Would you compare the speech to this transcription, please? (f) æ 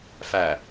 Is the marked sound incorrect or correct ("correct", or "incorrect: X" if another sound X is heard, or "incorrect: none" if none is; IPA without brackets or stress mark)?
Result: correct